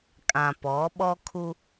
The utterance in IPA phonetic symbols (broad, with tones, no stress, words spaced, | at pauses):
kʼã˨pɔ˨˦ɓɔ˦kʰu˦